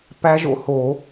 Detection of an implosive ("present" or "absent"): absent